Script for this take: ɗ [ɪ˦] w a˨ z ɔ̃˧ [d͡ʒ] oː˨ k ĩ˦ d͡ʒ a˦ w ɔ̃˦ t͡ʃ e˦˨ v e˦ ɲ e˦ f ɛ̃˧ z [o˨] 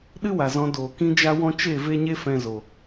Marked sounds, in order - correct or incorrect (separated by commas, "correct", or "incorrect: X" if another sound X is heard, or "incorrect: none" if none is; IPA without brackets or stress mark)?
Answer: incorrect: ɨ˦, incorrect: d, correct